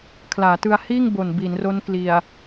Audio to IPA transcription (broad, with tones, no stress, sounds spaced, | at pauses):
kʰ l aː˩˦ t ɯ˧ a̯ h iː˥˩ ŋ b o˨˩ n b i˩˦ n r o˦˥ n k l i˨˩ a̯